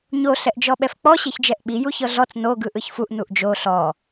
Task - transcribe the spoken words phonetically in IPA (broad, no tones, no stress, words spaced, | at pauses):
ɲo ɬɛʔd͡ʒɔɓɛfk͡pɔ ɕeçd͡ʒɛʔɓi juçɤɮɔt͡s no ɡɯʔɯçfuʔ nuʔd͡ʒo ɬɔ